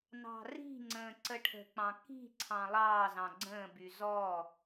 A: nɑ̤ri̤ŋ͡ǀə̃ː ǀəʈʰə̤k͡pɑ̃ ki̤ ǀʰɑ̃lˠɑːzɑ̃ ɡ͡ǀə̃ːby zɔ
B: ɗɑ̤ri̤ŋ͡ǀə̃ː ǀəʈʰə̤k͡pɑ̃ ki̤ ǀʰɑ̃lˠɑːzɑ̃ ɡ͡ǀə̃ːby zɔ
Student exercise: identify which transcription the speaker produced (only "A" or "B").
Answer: A